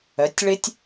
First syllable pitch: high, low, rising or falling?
rising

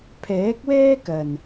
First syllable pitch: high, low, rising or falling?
rising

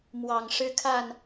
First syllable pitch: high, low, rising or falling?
low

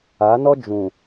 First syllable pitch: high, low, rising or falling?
rising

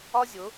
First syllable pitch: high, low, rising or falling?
high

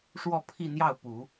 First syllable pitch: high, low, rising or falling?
falling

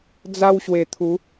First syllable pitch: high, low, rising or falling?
high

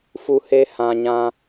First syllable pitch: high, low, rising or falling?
high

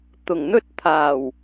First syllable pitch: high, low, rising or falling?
low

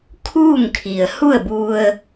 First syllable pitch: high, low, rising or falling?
falling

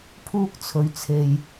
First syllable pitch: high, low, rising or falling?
high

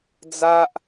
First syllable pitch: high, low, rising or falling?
high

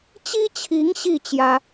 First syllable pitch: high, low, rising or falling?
high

